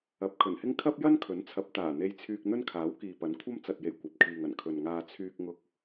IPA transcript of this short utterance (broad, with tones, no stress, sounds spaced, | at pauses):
ɐ˨˥ p̚ kʰ ɵ˨˩ n h ɪ˥ ŋ kʰ ɐ˥ p̚ j ɐ˥ n kʰ ɵ˨˥ n t͡sʰ ɐ˨˥ p̚ t̪ aː˨˩ n̪ e˧ j t͡sʰ yː˧ k̚ n̪ ɵ˥ n kʰ aː˨˥ w k iː˨ p ɐ˨˥ n kʷʰ ɐ˥ m t͡s ɐ˨ t̚ j e˨˩ j kʷ ɐ˨ p̚ kʰ iː˨ ŋ ɐ˨˩ n kʰ ɵ˨ n ŋ aː˧ t͡sʰ yː˧ k̚ ŋ ʊ˧ k̚